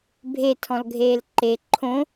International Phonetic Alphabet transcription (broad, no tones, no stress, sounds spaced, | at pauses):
bʱ e tʰ ɔ̃ l ɡʱ eː l ǃ e ǃʰ õ